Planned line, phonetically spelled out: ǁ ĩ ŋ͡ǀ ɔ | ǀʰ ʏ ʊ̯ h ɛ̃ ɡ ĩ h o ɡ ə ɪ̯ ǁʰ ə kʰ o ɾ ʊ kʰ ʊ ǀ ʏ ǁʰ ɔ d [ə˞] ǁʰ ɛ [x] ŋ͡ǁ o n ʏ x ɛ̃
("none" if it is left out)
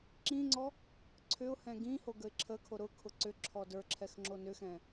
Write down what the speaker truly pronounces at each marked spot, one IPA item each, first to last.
ə˞, x

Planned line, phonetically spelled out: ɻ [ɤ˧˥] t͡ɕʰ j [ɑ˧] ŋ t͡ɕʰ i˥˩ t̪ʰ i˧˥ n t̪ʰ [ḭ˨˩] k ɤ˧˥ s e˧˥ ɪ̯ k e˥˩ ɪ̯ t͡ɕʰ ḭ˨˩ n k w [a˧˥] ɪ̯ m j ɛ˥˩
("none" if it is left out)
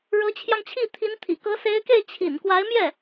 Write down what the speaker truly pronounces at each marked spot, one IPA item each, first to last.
ɤ˧˥, ɑ˧, ḭ˨˩, a˧˥

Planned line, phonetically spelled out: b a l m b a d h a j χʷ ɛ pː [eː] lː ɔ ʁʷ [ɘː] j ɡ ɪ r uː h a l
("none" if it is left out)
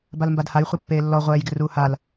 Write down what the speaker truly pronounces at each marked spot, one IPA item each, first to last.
eː, ɛː

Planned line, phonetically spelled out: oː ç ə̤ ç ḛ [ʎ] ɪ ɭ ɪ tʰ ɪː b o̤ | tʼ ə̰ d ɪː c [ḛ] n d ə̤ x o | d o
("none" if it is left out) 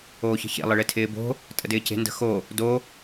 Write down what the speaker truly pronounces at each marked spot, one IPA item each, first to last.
lˠ, e̤

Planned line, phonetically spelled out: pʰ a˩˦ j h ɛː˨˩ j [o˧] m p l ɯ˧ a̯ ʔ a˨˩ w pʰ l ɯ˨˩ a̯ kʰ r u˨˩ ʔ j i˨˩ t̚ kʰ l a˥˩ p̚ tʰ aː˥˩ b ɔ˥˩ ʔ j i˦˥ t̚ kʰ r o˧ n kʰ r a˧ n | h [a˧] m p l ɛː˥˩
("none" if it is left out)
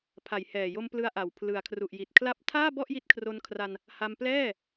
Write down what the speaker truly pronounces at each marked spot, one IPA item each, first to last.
o˧, a˧

